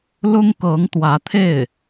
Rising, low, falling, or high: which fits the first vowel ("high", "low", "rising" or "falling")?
high